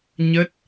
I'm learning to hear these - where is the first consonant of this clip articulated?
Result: palate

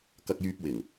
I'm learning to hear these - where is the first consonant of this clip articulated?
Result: velum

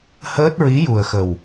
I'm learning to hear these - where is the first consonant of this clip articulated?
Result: throat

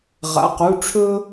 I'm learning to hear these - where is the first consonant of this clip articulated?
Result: uvula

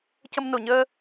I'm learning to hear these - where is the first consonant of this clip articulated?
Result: palate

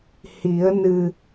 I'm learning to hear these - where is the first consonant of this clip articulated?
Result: throat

